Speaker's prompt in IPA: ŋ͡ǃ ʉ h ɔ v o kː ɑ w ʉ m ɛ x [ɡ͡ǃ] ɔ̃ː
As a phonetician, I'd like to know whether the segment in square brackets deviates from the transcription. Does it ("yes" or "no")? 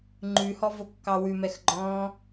no